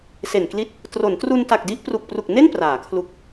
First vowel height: mid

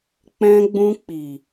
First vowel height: mid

